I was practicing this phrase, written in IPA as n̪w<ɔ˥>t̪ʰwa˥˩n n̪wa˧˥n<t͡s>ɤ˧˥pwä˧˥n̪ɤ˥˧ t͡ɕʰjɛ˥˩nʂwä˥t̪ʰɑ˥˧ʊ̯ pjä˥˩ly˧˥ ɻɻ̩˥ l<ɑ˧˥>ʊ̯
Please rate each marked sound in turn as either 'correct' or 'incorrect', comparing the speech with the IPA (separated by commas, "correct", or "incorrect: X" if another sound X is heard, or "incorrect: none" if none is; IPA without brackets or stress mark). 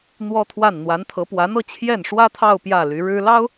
correct, incorrect: t̪ʰ, incorrect: ɑ˥